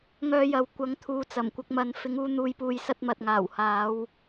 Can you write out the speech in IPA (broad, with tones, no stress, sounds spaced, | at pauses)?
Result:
ŋ œː˧ j ɐ˨ w kʷ ɐ˨˥ ŋ t̪ʰ uː˨˧ t͡s ɐ˨˩ m kʷ ɪ˧ k̚ m ɐ˧ n f ɪ˨˧ ŋ uː˧ n̪ uː˨˧ j p uː˨ j s ɐ˧ t̚ m ɐ˨ t̚ ŋ aː˨˩ w h aː˨˥ w